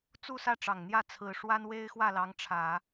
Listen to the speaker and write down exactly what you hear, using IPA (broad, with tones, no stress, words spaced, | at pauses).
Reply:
t͡su˥˧sä˥˩ʈ͡ʂɑ˨˩ŋ n̪jä˥˩t͡sʰɹ̩˨˩ʂwa˥n we˥ɪ̯xwä˥˩lɑ˧˥ŋʈ͡ʂʰä˨˩˦